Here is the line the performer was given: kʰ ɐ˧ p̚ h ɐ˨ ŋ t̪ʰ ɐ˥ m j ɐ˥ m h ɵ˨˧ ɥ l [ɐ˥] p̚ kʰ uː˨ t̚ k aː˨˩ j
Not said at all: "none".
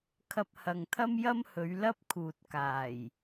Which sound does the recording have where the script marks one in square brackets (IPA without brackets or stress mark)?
ɐ˥